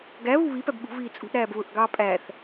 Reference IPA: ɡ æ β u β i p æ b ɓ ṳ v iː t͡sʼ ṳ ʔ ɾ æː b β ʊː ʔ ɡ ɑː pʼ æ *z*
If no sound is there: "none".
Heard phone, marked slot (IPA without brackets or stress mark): θ